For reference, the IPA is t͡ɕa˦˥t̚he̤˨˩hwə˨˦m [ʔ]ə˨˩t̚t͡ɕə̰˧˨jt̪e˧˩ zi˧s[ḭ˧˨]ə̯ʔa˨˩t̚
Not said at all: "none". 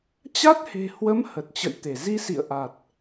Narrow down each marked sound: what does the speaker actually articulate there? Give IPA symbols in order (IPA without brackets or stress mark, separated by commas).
h, ḭ˧˨